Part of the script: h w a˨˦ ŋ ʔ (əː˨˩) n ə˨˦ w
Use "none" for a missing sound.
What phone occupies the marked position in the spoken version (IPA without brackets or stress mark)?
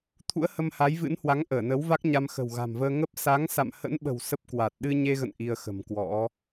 əː˧˩